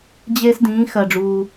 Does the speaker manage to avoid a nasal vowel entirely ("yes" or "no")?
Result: no